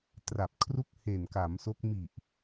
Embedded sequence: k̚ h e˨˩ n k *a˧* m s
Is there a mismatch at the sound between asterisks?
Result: yes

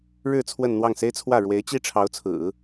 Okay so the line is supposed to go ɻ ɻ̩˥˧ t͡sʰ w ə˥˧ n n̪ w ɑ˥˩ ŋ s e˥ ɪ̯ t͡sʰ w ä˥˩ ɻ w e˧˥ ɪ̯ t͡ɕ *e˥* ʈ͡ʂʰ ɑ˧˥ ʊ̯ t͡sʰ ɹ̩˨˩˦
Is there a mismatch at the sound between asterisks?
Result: yes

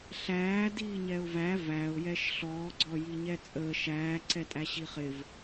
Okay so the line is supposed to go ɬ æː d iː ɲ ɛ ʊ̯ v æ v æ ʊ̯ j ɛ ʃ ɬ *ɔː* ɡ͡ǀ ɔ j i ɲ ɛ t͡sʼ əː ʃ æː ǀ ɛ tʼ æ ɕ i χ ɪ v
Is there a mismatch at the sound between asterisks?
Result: no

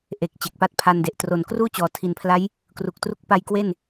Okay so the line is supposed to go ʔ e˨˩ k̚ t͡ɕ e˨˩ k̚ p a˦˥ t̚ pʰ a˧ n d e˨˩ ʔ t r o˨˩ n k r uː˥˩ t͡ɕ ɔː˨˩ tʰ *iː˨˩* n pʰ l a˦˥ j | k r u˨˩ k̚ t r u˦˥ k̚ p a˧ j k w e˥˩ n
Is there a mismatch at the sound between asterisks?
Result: yes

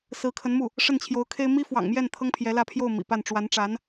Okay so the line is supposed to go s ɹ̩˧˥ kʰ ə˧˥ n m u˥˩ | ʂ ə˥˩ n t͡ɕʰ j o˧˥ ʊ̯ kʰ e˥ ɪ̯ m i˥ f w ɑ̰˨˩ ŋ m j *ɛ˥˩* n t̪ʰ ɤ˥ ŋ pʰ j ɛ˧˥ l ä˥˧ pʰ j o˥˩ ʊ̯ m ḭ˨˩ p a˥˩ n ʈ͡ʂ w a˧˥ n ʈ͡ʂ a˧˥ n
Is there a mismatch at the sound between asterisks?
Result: no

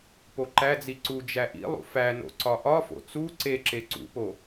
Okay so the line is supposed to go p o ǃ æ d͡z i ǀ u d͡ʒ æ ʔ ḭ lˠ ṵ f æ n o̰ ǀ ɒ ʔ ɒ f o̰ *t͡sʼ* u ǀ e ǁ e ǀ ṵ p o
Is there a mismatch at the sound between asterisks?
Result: yes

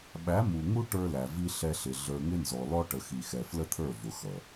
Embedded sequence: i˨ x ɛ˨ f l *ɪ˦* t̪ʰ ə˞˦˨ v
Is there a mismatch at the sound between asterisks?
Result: yes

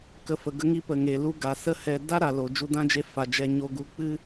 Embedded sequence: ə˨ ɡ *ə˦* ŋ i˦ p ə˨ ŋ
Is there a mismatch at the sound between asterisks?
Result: no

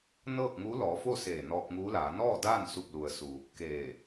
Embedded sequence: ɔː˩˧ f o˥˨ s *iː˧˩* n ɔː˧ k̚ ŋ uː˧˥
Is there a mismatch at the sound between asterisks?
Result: yes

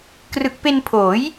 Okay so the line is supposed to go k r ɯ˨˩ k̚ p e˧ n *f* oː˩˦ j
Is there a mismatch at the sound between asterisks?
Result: yes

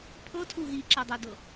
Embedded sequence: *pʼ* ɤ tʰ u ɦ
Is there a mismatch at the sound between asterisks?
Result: yes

